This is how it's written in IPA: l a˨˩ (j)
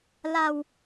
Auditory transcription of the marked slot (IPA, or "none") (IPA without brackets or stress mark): w